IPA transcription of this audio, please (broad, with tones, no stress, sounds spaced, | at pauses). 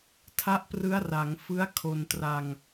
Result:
tʰ a˦˥ ʔ p r ɯ˦˥ a̯ r a˩˦ ŋ f ɯ˦˥ a̯ kʰ o˧ n t r a˧ ŋ